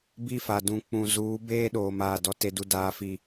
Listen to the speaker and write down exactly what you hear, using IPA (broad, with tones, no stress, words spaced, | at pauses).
bi˦fa˨ dũ˨ k͡pũ˨ zuː˨˦ beː˦ɗoː˨ maː˨ dɔ˨te˨du˨ daː˨fi˨